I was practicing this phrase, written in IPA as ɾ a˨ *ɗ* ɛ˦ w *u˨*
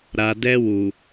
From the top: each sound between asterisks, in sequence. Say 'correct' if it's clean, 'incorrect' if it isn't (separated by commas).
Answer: incorrect, correct